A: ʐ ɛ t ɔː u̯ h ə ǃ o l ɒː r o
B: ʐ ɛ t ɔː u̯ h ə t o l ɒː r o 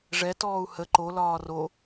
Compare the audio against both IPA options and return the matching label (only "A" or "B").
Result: A